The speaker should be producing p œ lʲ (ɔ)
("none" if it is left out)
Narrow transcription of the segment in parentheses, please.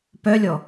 ɔ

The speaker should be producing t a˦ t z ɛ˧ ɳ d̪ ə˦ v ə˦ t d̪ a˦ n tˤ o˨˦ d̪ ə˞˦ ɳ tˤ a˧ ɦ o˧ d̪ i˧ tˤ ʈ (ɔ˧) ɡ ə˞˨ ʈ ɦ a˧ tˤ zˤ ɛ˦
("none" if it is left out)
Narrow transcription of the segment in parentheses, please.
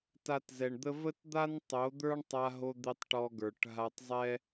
ɔ˧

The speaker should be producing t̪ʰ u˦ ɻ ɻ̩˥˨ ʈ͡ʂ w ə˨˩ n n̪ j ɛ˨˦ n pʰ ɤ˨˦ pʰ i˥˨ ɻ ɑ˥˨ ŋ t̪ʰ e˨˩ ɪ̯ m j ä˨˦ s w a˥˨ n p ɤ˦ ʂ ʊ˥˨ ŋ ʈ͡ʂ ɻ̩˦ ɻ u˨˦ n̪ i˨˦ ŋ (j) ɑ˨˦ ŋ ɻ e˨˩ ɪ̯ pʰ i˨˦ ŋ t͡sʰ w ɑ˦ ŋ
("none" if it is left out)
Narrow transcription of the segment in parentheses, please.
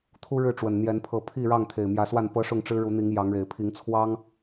j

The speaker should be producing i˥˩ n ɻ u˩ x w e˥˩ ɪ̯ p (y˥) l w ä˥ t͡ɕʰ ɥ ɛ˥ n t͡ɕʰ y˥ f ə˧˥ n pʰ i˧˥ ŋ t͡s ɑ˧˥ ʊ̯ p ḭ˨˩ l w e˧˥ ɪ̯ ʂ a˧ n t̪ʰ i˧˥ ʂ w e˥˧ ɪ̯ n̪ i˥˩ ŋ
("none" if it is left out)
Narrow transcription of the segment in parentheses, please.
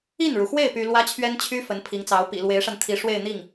y˥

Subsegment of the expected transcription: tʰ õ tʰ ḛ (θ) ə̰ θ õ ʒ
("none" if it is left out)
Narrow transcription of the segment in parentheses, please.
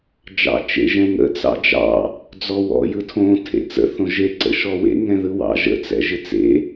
t͡s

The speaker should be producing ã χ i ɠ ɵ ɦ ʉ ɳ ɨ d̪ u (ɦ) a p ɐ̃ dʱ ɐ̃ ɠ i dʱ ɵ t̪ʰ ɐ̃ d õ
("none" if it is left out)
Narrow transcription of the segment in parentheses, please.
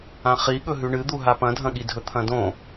ɦ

